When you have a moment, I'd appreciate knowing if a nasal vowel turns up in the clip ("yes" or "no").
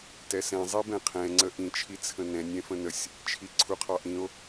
yes